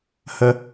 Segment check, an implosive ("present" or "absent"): absent